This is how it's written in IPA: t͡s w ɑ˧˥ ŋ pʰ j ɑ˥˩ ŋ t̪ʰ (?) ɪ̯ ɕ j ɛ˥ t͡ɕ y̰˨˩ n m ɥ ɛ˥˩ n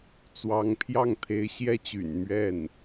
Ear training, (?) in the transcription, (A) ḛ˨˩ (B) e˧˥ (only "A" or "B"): B